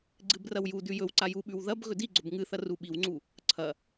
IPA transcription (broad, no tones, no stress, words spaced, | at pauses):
ɡ͡ǀɨbrɐwjudʉ jɵwǀa juɓʉw ðɐb ɣɵdiɡ͡ǀɵb ŋɨθɐ ruɓiwŋ͡ǀu | ǀʰɐ